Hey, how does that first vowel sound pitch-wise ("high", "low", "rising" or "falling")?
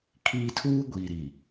high